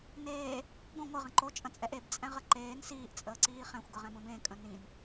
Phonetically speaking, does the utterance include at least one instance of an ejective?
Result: yes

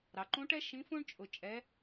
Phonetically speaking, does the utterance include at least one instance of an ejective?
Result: yes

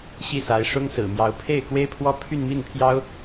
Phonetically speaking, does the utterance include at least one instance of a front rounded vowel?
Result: yes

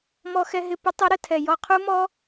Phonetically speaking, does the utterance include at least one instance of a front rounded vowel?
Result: no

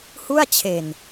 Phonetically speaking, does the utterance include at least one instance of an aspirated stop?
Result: yes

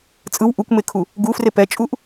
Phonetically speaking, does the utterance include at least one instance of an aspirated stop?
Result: yes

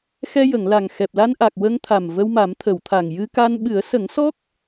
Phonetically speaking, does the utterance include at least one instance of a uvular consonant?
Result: no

